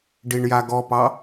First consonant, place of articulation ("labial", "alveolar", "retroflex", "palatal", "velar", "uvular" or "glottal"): retroflex